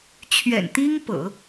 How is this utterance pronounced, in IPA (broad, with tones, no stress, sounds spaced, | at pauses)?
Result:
t͡ɕʰ ɥ ɛ̰˨˩ n t̪ i˥ ŋ p ɤ̰˨˩˦